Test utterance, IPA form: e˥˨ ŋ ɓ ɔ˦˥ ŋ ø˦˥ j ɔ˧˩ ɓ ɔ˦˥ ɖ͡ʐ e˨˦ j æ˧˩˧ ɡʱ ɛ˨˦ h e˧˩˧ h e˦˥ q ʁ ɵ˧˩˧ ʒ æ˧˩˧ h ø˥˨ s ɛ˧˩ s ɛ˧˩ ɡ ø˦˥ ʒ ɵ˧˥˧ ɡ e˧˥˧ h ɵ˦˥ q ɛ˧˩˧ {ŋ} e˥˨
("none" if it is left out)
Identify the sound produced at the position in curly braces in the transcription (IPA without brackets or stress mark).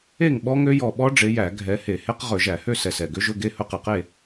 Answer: q